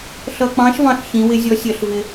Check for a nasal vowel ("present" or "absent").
present